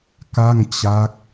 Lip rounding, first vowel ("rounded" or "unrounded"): unrounded